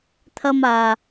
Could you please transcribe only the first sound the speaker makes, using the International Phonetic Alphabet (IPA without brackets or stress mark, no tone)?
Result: t̪ʰ